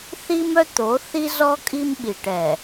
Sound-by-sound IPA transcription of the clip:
θi˦mœ˦t̪o˨˦ θi˦zɔ˦ kʼi˦mɓi˨ʈɛ˨

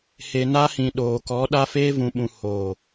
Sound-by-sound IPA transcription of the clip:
he˨ na˧hĩ˨ ɗoː˨kɔ˨˦ ɗa˧feː˧vũ˨ɓũ˨ hoː˨

